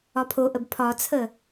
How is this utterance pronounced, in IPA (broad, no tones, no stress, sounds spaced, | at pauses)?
ɒ pʰ o ʔ ə b pʰ ɒ t͡sʰ ə